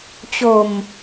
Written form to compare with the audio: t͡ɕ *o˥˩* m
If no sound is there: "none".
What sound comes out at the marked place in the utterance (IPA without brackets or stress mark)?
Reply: o˨˩